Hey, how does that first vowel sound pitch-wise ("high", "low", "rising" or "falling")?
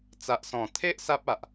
low